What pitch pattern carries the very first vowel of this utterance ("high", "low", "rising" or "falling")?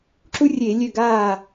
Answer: high